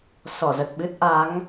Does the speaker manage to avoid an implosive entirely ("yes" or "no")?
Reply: no